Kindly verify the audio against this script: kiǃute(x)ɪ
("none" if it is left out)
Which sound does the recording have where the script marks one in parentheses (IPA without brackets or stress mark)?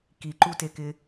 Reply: k